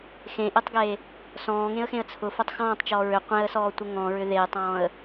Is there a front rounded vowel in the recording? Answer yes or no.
yes